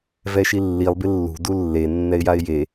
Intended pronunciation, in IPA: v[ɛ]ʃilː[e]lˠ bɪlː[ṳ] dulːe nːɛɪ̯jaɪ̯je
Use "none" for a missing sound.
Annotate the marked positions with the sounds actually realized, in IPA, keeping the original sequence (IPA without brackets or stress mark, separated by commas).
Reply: ɛ, i, ṳ